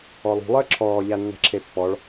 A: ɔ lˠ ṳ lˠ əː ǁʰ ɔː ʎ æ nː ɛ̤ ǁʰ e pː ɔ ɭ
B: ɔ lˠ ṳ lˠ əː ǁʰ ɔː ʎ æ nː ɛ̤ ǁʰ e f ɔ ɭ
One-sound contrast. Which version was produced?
A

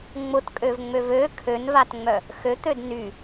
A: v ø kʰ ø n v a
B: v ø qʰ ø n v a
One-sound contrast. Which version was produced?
A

